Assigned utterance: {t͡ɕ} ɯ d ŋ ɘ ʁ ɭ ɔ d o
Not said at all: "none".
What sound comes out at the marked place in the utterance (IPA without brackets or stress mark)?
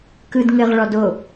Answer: k